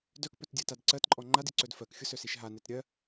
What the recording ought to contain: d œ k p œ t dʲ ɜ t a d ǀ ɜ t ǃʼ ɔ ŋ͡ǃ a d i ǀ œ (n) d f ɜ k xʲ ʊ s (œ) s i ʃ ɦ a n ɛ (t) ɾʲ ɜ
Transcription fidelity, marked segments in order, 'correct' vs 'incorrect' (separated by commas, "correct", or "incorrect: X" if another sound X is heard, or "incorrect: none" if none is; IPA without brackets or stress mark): incorrect: none, correct, correct